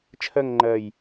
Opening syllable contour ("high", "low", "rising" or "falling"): falling